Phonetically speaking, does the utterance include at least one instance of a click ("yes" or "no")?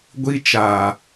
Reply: no